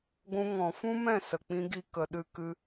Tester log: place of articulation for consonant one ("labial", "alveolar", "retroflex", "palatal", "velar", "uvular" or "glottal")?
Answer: velar